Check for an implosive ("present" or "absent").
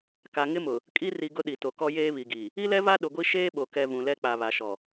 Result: present